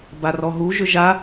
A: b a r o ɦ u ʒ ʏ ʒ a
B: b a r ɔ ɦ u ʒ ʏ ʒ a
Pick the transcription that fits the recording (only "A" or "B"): B